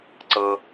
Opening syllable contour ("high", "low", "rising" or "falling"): low